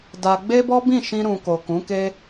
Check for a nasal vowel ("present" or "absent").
present